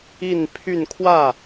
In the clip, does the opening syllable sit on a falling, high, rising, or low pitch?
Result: falling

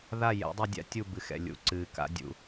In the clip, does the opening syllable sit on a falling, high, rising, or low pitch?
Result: falling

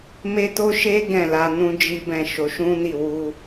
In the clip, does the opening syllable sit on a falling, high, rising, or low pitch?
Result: high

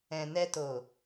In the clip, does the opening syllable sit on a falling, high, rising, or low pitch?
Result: low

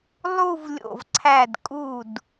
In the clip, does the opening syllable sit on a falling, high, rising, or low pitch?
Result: falling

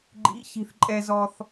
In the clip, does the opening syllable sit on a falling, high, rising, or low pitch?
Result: rising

